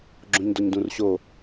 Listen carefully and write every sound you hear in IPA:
ɡ͡ǁõɲdɔɲdũrɕo

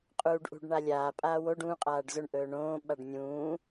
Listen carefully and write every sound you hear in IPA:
qʼuːɖʔṳɖ ɳalʲaː pʼaːwoɖ ũ qʼaːɖzɵɳ ʔɵːɳõː ɓaɖnʲũː

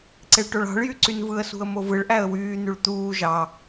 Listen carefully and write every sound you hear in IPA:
ǀeɭʈoɭɑ̤ɭjy ǀynvɯə̯sṳə̯ movɯɭʔæə̯ wyːn̪yɭ t̪uː ʒɑ

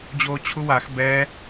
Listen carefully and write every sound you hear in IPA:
d͡ʑoːt͡ɕʰuwax bɛ

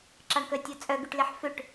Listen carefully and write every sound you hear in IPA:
ǁɑɳkœtʲɔt͡sʼœ ɡyʈleħføʈ

